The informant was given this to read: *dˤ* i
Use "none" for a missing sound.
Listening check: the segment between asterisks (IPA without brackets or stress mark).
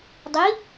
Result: dˤ